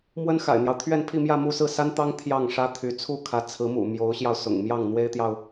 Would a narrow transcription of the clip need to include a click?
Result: no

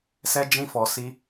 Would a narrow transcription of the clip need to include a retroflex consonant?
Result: no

